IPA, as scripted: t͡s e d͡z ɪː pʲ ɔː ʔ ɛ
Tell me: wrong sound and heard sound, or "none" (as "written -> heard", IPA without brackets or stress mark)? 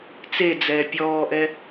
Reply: ɪː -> ɛː